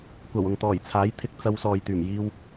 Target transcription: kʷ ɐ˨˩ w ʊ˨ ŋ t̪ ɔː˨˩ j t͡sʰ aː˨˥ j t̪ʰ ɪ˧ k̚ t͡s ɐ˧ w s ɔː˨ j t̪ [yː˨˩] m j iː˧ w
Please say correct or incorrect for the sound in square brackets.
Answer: correct